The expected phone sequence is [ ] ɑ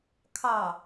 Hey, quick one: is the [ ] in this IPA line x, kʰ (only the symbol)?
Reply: kʰ